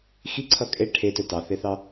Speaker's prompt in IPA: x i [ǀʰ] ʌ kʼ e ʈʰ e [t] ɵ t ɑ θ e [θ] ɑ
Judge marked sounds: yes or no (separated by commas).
yes, yes, yes